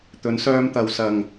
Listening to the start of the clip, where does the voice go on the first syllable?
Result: rising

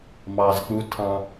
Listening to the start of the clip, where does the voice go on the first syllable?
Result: low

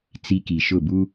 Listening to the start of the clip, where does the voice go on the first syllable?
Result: high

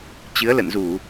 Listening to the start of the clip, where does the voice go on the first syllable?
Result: rising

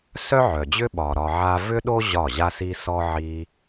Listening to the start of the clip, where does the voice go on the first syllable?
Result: high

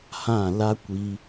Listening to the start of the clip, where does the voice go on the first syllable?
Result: falling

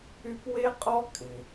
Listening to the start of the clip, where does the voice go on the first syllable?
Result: high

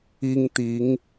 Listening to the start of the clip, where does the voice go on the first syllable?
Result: high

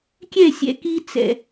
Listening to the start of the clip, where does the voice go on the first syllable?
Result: falling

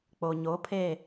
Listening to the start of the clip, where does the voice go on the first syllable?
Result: low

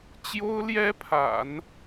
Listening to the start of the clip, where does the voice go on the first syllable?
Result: high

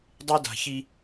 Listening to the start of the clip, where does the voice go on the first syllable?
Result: high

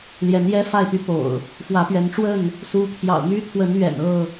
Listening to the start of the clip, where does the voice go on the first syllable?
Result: rising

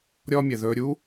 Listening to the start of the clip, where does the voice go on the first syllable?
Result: high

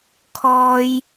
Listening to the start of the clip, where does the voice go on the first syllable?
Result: high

